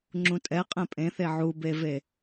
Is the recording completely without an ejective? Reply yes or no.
no